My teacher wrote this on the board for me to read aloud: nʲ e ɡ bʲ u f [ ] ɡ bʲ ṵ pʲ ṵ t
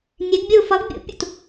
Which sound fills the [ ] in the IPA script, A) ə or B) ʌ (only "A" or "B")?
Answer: B